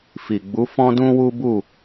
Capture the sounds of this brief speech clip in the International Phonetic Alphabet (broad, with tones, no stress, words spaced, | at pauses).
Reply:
fi˨ɡ͡bu˨˦ fɔ̃˦dũ˦wu˦ bu˦˨